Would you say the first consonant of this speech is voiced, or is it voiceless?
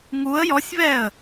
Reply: voiced